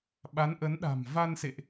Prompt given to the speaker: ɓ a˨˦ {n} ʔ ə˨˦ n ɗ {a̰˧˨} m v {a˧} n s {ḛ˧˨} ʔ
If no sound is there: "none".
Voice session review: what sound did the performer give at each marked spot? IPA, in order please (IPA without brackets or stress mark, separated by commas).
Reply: n, a̤˨˩, a˧, ḛ˧˨